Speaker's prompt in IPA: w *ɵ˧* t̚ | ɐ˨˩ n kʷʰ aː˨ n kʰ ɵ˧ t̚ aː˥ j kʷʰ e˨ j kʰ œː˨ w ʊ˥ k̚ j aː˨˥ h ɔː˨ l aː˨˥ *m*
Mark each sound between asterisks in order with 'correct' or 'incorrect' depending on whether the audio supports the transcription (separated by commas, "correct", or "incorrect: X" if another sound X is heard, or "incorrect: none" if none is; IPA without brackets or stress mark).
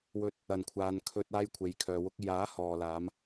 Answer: correct, correct